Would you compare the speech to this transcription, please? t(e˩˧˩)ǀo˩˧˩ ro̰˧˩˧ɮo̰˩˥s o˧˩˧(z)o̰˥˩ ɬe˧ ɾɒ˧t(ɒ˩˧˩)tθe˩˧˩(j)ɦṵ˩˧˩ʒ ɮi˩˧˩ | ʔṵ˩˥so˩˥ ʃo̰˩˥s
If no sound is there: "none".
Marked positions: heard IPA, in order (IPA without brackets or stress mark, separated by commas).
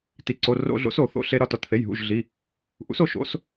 i˩˧˩, θ, ɒ˩˧˩, j